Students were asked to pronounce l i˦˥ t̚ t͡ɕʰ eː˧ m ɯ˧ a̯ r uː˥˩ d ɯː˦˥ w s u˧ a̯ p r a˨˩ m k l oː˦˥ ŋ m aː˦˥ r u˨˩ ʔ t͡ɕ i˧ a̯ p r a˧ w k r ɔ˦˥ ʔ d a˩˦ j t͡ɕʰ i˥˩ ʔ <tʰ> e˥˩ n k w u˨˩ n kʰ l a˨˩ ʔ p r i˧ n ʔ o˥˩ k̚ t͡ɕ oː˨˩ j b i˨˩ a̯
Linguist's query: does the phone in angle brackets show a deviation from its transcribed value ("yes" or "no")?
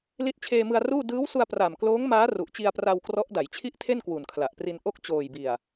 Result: no